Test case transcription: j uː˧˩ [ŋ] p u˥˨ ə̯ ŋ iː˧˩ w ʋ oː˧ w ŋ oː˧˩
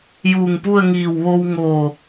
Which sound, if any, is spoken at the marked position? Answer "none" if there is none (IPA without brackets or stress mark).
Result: ŋ